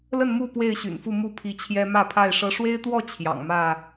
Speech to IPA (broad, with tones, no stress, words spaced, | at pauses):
lə˥˨nmu˥˨ pwe˥˨ɪ̯ɕy̰˨˩nfu˥˨ mu˥˨pʰi˨˦t͡ɕʰjɛ˦ mä˥˨pʰa˥˨ɪ̯ʂɤ˦ ʂwe˦ɪ̯t̪wɔ˥˨ t͡ɕʰjɑ̰˨˩ŋmä˥˨